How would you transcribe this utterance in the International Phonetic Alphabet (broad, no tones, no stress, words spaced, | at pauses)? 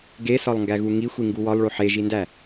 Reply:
ɡesɒlˠŋɡæɣu ŋixʷiŋɡu wɒlˠɭo ħeʒindæ